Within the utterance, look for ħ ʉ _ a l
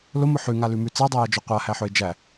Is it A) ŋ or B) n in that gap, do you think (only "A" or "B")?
A